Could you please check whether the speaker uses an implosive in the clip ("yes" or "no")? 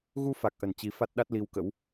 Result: yes